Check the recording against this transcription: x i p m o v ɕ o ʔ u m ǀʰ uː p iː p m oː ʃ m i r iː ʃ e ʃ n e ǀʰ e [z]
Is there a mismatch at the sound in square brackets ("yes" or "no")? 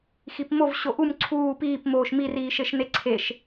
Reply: yes